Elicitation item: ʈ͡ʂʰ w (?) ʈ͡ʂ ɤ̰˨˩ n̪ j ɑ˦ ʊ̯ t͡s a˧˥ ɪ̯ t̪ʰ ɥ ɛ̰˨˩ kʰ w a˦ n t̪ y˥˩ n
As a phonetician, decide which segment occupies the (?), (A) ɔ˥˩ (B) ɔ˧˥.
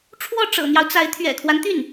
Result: A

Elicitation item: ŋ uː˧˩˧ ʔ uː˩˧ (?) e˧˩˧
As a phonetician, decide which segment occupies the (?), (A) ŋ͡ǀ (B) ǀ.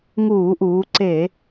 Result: B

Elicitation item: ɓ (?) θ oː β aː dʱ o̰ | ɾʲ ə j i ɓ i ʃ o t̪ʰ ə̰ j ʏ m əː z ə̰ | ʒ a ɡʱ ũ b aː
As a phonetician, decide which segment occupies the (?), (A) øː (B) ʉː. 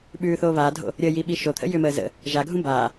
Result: B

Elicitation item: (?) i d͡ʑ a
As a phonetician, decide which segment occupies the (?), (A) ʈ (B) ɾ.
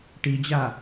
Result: A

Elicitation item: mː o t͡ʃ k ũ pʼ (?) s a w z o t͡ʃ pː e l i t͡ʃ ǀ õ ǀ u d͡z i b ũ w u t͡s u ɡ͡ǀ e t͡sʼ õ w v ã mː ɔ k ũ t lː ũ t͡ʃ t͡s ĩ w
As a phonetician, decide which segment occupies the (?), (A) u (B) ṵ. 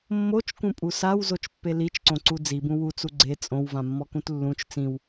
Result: A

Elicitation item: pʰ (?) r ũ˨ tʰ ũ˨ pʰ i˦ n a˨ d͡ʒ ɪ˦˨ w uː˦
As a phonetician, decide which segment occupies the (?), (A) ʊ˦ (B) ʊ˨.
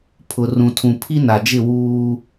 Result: B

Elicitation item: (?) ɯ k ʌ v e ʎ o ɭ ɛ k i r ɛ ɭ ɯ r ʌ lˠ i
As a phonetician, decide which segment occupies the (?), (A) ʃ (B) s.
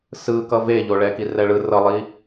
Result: B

